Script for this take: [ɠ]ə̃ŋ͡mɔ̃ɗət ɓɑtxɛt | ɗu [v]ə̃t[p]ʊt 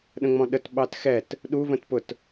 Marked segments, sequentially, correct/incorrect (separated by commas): incorrect, correct, correct